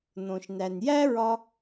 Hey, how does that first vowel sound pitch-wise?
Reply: low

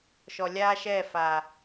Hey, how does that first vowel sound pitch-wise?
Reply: low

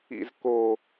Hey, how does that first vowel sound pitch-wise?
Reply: low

